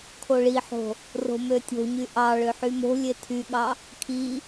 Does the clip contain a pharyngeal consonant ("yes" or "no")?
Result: yes